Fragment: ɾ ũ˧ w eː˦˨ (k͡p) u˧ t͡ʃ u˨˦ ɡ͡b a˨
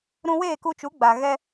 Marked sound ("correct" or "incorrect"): incorrect